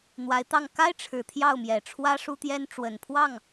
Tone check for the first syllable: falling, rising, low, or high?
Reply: rising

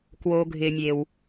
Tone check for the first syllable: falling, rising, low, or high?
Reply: low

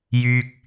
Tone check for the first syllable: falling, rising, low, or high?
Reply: low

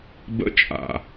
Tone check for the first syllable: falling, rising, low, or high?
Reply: high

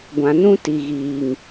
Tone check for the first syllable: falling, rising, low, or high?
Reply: low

